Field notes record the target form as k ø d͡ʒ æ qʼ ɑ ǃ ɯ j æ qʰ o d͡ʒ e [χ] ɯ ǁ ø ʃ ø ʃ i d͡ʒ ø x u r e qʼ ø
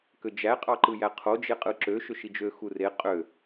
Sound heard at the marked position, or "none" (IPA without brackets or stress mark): qʼ